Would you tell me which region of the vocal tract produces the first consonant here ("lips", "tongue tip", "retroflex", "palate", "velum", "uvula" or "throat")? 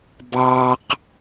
lips